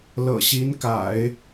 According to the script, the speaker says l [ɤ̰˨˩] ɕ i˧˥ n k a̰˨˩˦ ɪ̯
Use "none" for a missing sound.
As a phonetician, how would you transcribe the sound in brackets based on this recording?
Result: ɤ̰˨˩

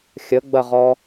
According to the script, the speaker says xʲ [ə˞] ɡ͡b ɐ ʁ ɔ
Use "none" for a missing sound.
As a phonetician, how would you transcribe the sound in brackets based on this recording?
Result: ə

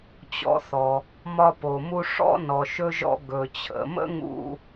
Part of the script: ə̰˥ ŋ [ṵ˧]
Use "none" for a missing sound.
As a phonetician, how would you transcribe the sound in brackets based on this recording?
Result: ṵ˧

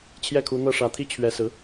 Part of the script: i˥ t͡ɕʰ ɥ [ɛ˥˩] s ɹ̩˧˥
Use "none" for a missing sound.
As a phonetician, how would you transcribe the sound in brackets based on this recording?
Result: ɛ˧˥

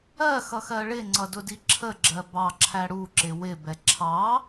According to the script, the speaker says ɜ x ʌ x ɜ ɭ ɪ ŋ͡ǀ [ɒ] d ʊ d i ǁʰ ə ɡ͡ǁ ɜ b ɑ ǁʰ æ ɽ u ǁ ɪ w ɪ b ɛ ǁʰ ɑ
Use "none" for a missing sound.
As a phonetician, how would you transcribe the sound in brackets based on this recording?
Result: ʌ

